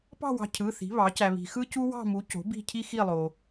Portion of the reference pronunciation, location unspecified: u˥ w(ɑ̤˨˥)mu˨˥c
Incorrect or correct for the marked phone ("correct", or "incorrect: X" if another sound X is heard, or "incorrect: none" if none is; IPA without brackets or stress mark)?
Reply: incorrect: ɑ̤˥˧